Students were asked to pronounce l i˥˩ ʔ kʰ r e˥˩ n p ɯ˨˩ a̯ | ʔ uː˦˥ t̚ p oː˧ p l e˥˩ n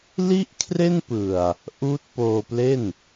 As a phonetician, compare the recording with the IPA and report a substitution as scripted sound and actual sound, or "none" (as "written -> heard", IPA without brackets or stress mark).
none